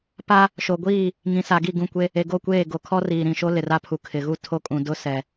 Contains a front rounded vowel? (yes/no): no